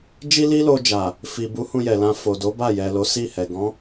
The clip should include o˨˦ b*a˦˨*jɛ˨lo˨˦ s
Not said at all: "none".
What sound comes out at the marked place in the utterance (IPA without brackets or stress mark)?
a˦˨